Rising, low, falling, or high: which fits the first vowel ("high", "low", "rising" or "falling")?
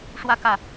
falling